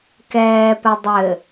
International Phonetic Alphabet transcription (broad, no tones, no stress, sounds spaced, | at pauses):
k ɛː p ɘ dˤ ɘ